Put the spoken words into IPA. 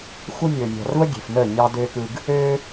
x u˦ mʲ ɵː˨ mʲ ɑ̤˨ r v ə˦ ɡʲ e̤˨ f n əː˦˨ ɲ ɑ˦ d øː˦ k ɯ˦ ɡ | ø˦

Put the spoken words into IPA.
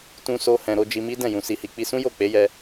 t ũ˧ s o˧ h ɛ̃˨ ɾ o˧ d͡ʒ i˧ m i˦ d ɛ̃˦˨ j ũ˨ s i˨ h i˨ k͡p i˧ s ũ˦ j o˦˨ k͡p e˨˦ j ɛ˧

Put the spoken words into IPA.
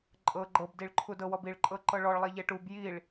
ǃʼ ɤ ɡ͡ǃ ɤ b d i ɭ ǃʰ u d ɤ w ɔ b i ɭ ǃʼ ɤ ǃ ɤ ɭ ɔ ɭ lˠ ɛ ʎ ɛ ʈ u b j i ɭ

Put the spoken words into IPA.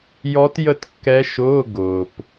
j ɔ˧˥ t j ə˥˨ t kː ɛ˧˥ ʃ ʊː˧˥˧ ɡ ʊː˨ p

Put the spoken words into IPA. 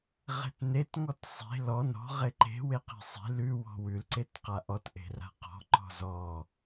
ʁ e̤ t n e t ŋ ɔ t sˤ e̤ l ɔ n ɔ̤ ʁ e ǃ e̤ w e q e̤ sˤ e̤ l ʉ w ɔ̤ w ʉ l ǀ e t q a ʔ ɔ t ʔ e̤ r a̤ q ɔ̤ ǃ ɔ̤ z ɔ

